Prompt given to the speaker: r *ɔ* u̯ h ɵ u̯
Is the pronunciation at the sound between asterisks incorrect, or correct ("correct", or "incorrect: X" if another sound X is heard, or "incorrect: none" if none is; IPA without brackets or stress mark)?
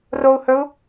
incorrect: o